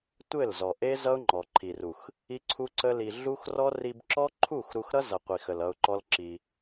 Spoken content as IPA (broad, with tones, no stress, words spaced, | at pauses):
tʷɘ˦˨lzɔ˨ʔe˦ zʌ˦ʊ̯ŋ͡ǃɔ˨ǃʰi˨ru˨x | i˦ǀʰu˦ǀə˦li˧ ɮu˦xrɔ˦ ri˧bǁɔ˦ ǃʰu˦˨x ɾu˧xɾʌ˦zʌ˨ qʷi˨xə˨l ʌ˧ʊ̯ǃɔ˦lǁi˧